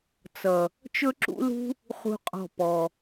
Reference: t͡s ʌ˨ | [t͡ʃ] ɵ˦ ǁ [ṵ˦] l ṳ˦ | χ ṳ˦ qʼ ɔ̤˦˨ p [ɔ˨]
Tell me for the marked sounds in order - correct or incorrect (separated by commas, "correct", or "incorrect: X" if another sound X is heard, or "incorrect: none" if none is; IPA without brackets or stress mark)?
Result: correct, correct, correct